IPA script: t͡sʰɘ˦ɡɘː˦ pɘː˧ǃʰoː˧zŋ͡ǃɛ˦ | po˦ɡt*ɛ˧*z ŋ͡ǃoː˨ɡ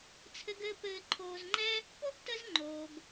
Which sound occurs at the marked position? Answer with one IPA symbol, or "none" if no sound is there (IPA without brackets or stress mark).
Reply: ə˧